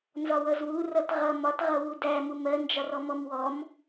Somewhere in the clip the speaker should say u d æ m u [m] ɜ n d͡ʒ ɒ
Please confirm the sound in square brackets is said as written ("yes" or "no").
yes